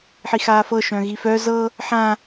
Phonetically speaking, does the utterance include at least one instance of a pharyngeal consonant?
yes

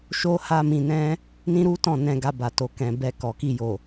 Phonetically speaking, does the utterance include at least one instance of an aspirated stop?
no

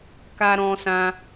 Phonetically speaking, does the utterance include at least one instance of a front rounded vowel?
no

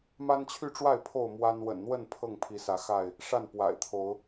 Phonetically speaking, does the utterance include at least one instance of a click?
no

